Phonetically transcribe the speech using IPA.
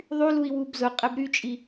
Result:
ðˤylui̯ wubzʊqʼɛb ɾyt͡ʃʼi

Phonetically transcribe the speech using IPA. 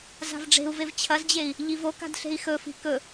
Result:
za̤vɖ͡ʐe̤u̯vev t͡ɕʰɐzd͡ʑei̯ | ʎivoka̤d ɬe̤i̯xɵfi̤ kɵ

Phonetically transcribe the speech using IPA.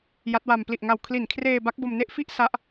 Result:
ja˦˥t̚wa˧m pli˨˩ʔŋa˨˩w kʰli˨˩nkʰreː˧ ba˦˥k̚bo˧mne˥˩ʔ fi˥˩ʔ sa˦˥ʔ

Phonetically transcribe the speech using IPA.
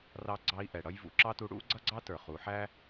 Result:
rɑ˧ɡ͡ǀɑ˧i̯ ʔɛ˩ɽʌ˥j vṵ˩˧ǁɑ˥tu˧˥ ɽṵ˧˥ɡ͡ǀʌ˥ɡ͡ǀɑ˥ tə˞˩χu˩˧ħæ˥

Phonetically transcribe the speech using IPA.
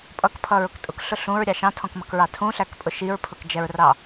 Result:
pʼʌkpʰʌɹʊk tʼʊkɬʊ ɬũɹɾʲɑ ʃɑ̃tʰɔ̃kmʌkɹɑ tʰũɬækpʼʊ ʃiɹpʰʊkd͡ʒɛɹrɑ

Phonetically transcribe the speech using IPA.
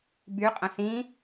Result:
by qʼə̃sĩ

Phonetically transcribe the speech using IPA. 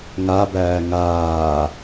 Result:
ŋabæː ŋaː

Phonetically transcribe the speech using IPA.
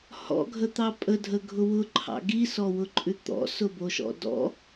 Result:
hɔ̰ɡʱət̪ɑ pʼədʱəɡʱʊ wʊǃʰɑ̰ ɡisɔwʊǃʼʉ t̪ɔ̰sʊboʃɔ̰ dɔ̰

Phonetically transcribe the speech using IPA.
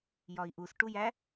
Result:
jɒi̯ʔus ʈujæ

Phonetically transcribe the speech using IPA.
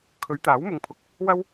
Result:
kʰɵ˨˧ɥt̪aː˨˥wmʊ˨˧ŋpʰʊ˨k̚ | wɐ˥w

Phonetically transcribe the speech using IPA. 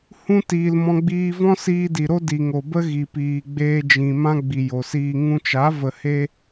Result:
hũ˦ tiː˧lmɔ̃˦ ɡ͡biː˧vɔ̃˦ siː˧di˨ ɾo˦di˨ŋo˨bə˦ ɣi˨piː˨ ɡ͡beː˧d͡ʒĩ˨ mã˦ ɡ͡bi˨jo˨siː˧ ŋũ˧t͡ʃa˨˦ və˨he˧

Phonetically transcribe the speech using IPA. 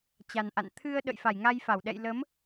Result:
t͡ɕa˨˩nʔa̰˧˨n t̪ʰɨ˧ə̯ ɗə̰˧˨jfa˧˩jŋa˧jfa˧˩w ɗɛ̰˧˨jlə˨˦m

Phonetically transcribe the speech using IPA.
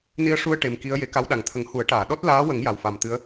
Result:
ni˧ə̯ ʂu˧ə̯ ʈe˨˩mki˧˥ə̯ je˨˩˦ka˧˥wɗa˨˩ŋt̪ʰə˨˩˦ŋ hu˨˩˦ə̯ʈaː˨˩˨ ɗɔ˦˥t̚laː˧˥wə˨˩˦ŋ ja˨˩wfa˨˩mt̪ɨ˧˥ə̯

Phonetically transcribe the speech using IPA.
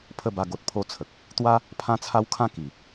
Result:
pʰə˥˧ba˥˧ɡo˦t̚ pʰo˦t͡sʰə˨k̚ | t̪wa˦ | pʰã˦t͡sʰa˦w kʰã˥˧ ki˨˩

